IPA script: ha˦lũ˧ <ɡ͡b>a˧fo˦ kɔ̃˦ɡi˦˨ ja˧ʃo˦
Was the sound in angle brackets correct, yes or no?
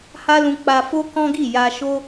no